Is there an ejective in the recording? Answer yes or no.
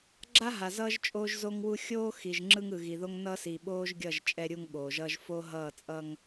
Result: yes